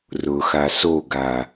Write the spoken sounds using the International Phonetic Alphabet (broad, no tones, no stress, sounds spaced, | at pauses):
r ʊ x a s o ɡ a